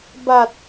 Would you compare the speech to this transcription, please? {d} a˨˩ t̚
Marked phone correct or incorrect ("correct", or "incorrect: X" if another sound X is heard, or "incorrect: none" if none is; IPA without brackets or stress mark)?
incorrect: b